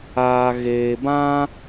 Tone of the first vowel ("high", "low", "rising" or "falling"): low